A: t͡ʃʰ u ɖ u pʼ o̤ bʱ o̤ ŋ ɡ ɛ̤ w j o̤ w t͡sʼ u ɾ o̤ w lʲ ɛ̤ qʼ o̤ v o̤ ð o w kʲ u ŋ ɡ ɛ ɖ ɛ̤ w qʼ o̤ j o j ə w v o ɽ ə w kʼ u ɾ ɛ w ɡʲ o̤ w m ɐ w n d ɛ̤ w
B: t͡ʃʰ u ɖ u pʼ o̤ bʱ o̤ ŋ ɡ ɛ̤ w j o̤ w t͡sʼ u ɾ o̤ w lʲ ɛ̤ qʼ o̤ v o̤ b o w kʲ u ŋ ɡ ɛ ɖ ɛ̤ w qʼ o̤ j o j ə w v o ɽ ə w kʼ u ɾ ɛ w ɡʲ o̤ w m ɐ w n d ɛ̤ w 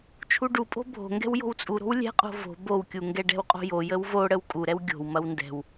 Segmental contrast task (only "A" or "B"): B